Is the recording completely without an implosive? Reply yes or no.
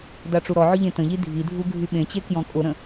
no